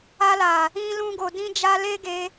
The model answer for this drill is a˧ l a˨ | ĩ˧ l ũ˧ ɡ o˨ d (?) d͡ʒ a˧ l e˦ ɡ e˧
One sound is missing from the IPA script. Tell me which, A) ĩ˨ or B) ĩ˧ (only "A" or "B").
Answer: B